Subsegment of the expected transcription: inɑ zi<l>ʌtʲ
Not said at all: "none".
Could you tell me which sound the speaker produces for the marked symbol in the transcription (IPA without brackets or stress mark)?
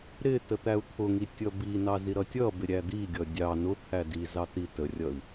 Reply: ɾ